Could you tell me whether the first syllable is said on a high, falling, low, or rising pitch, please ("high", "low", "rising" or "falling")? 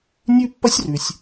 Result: high